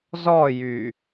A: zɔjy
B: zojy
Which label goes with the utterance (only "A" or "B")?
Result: A